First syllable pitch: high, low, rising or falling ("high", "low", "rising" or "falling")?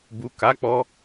low